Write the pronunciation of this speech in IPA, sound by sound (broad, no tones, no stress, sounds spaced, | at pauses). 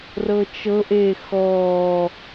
r ɤ t͡ʃ ɤ ʔ eː x ɔː